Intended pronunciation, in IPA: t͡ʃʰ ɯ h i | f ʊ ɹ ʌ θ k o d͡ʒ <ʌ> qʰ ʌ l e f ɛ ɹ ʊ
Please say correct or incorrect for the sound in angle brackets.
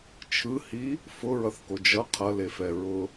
correct